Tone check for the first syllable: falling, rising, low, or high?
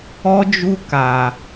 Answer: high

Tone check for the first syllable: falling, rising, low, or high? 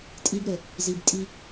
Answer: high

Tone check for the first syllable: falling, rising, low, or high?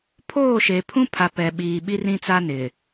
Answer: falling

